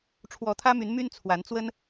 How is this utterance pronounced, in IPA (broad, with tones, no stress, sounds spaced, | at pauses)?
ʈ͡ʂʰ w ɔ˨˦ t̪ʰ ä˦ m y˨˦ n m y˦ n t͡sʰ w a˨˦ n t͡s w ə˦ n